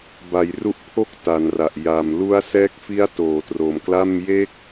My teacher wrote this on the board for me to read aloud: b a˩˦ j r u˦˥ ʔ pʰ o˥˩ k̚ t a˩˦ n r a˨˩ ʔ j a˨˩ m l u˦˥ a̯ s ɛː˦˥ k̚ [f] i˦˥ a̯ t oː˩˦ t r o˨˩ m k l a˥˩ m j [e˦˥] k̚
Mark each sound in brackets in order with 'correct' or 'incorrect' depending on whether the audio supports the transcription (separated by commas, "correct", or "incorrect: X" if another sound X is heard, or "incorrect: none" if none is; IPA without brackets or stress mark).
correct, correct